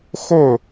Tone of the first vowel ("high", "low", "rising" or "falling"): falling